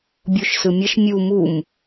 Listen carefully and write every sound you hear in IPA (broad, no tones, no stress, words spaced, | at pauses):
bʲoʃsɯmʲʌʃ mʲu mum